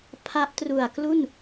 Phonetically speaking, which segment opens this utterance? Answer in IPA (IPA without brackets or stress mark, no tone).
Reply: pʰ